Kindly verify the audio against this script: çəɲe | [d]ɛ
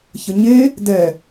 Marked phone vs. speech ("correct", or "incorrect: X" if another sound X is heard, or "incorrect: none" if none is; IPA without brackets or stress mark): correct